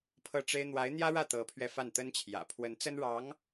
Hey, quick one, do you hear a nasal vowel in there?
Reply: no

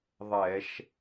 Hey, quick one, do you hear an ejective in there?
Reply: no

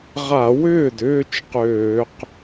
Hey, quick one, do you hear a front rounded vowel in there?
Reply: yes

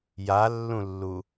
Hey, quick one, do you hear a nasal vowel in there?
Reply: yes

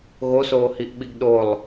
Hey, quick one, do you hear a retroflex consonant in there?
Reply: no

